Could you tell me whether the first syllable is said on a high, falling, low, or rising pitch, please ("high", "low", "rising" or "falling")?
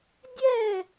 falling